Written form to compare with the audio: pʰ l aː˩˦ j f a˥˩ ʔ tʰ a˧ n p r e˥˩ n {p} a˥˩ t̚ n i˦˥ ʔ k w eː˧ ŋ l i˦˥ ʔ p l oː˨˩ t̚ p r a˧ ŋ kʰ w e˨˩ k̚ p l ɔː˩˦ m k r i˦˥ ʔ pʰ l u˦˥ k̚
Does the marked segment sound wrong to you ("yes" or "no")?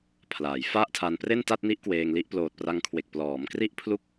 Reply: yes